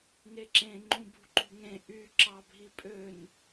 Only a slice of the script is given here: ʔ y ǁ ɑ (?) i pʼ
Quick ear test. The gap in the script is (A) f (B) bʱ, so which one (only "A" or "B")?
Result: B